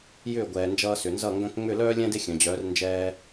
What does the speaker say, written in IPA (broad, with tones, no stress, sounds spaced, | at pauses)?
j ʏː˦˨ ɡʷ ɛː˨ n d͡ʒ ʌː˧ s ʏ˨ n z ʌ˦˨ ŋ ɡ œ̃˧ k ŋ͡m ʏ˦˨ l œː˦ lʲ ɛ̃˦ d e˦ xʲ œ̃˨ d͡ʑ œː˨˦ r n d͡ʒ ɛː˧